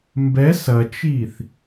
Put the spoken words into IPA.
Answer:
m b ɛ s ɐ t͡ʃ iː θ

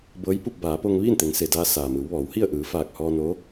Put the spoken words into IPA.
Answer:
b ɤː˧˥ j p u˥˨ p̚ b aː˩˧ p o˧ ŋ ʋ iː˥˨ n t̪ e˩˧ ŋ s e˩ d aː˧ s aː˩ m ɯː˩˧ w ʋ ɔː˩˧ w h i˥˨ ə̯ ʔ ɯː˩˧ f aː˧˩ k̚ h ɔː˧ n o˧˥

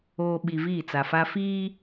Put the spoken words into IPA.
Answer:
oː˨ ɓ i˨ v iː˦˨ t͡s a˨ f a˦ f iː˦

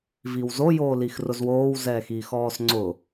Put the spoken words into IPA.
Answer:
v i w z o j oː l i x r ʊ z w oː w z ɛː x iː x ɔː s ŋ͡ǀ ʊ

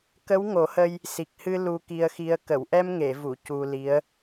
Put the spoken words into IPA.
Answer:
k ə˧˥ w ŋ o˨˩˦ h ə˧ j | s i˨˩ k̚ h ɨ˧ l u˧ k i˧ ə̯ x i˧ ə̯ k ə˨˩˨ w ʔ ɛ˧ m ŋ e˨˩˨ v u˨˩˨ c u˧ l i˧˥ ə̯

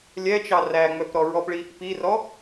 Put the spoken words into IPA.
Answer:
lʲ ɛ t͡ʃ ɑ r æ ŋ͡m œ p ɾ ɔ ɹ ɔ p ɭ i | p i r ɔ

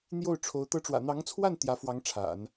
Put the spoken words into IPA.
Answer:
n̪ j o˥˩ ʊ̯ ʈ͡ʂʰ o˧˥ ʊ̯ t̪ ɤ˧˥ ʈ͡ʂ w ä̰˨˩ n̪ ɑ˧˥ ŋ t͡sʰ w a˥˩ n t̪ j ä˧˥ f w ɑ˧˥ ŋ ʈ͡ʂʰ a̰˨˩˦ n

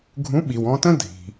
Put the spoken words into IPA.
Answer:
ɡʱ ũ˨˥ ɓ i˩ w ɔ̃˧ t ə̃˥ dʱ i̤˩

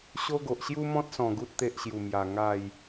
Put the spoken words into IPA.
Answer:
ɕ o˦ ɡ o˨ ʔ ɕ j u˦ m ɔ̃˦ t̚ s ɔ̃˨˩ ɡ u˦ t̚ t̪ e˦ ʔ ɕ j u˨˩ m j a˨˩ ŋ a˥˧ j

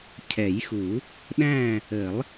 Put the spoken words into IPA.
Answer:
cʰ ɛ˨˩˦ j x u˨˩˦ | ɗ æ̃˥˨ | ə˨˩˦ lˠ

